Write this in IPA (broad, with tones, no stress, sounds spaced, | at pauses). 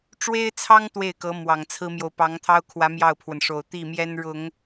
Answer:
ʈ͡ʂ w e˥ ɪ̯ t͡sʰ ɑ˥ ŋ t̪ w e˥˩ ɪ̯ k ɤ˧˥ m w ɑ˨˩ ŋ t͡sʰ ɹ̩˥ m j o˨ ʊ̯ p ɑ˧˥ ŋ t̪ʰ ɑ˥ ʊ̯ kʰ w ä˧˥ m j ɑ˥˩ ʊ̯ pʰ w ə˩ n ʂ o˨˩ ʊ̯ t̪ i˥˩ m j ɛ˥ n ɻ ʊ˨˩˦ ŋ